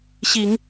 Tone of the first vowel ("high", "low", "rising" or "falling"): low